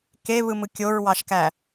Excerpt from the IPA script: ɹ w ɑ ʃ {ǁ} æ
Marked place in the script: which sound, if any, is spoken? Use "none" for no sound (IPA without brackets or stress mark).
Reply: k